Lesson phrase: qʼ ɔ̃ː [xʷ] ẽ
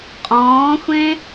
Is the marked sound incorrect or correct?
correct